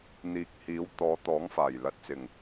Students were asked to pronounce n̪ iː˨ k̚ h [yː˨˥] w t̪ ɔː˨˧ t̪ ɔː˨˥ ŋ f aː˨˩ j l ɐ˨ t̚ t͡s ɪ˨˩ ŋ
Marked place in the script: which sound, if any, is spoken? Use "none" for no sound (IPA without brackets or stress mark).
iː˨˥